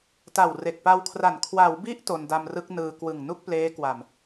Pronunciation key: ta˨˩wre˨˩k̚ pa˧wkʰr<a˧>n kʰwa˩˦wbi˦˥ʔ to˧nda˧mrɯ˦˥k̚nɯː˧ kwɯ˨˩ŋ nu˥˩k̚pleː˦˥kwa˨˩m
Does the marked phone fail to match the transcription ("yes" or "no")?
yes